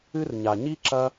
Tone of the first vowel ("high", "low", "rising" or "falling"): high